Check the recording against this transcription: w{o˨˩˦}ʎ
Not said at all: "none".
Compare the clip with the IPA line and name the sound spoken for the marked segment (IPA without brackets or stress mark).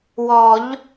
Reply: ɔ˨˩˦